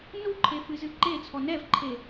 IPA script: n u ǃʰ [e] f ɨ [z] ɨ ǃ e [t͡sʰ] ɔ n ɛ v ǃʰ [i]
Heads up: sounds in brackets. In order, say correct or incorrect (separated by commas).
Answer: correct, correct, correct, incorrect